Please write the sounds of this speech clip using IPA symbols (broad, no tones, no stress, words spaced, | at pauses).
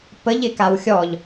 pəʎɪkaw xʲɔʎ